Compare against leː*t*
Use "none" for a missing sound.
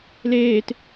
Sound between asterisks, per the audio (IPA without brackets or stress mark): t